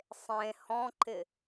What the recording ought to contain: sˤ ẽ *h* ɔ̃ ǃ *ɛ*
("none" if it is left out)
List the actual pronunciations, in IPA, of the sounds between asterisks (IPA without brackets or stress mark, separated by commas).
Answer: h, ɪ